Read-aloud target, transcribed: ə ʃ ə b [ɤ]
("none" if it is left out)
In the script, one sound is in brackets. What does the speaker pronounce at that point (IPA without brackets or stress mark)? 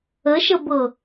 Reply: ɤ